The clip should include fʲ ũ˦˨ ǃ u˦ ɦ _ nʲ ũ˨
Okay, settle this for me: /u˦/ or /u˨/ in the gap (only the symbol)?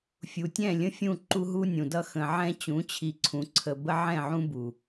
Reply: u˦